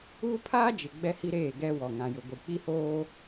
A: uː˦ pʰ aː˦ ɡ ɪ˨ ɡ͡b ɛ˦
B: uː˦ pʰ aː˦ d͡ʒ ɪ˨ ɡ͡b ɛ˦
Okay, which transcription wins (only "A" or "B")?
B